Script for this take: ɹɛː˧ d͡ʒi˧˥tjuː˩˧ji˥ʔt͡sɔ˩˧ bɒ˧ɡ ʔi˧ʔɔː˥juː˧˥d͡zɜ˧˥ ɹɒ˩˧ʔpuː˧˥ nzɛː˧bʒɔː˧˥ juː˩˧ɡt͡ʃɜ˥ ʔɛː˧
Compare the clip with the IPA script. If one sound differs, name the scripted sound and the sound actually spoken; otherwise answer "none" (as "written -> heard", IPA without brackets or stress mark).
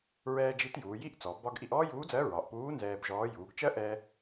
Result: none